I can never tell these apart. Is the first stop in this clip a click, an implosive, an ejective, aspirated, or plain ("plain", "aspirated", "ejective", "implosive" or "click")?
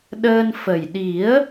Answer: implosive